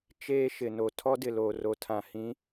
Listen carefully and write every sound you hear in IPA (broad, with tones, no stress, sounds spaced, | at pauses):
t͡ʃ eː˦ ʃ ɪ˨ n o˨ tʰ ɔ˦ d ɪ˨ l oː˨ r o˨ tʰ ã˨ h ĩ˨˦